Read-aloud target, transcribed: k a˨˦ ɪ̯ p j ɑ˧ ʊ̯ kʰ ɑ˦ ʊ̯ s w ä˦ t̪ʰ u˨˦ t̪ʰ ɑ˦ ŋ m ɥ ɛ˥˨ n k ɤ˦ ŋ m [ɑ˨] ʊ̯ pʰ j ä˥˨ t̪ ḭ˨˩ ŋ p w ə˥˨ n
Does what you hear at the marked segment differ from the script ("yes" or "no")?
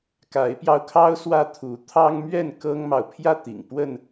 no